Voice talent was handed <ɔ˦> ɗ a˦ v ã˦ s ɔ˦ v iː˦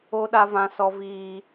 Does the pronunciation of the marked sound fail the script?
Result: yes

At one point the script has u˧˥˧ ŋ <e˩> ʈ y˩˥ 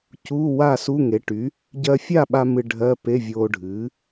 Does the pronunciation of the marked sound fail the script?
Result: yes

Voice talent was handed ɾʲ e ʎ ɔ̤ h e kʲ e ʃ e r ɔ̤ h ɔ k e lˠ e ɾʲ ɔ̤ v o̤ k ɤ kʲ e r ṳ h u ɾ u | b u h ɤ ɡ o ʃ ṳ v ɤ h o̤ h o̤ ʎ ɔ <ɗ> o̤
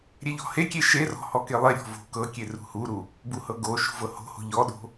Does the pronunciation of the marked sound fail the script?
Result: no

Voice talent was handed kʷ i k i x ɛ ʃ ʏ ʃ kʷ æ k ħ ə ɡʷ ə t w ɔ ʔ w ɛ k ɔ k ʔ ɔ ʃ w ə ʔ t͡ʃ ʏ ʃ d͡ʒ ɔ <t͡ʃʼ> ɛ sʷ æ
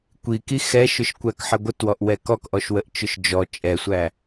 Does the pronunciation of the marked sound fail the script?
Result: no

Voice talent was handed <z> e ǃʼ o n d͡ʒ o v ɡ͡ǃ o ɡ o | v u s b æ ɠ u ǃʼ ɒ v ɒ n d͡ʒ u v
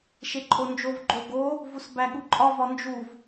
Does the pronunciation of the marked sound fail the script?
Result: yes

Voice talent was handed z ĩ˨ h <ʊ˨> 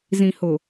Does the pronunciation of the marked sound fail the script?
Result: no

